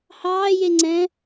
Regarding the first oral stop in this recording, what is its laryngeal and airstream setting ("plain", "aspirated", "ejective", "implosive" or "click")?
click